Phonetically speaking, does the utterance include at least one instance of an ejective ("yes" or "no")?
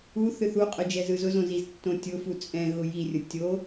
yes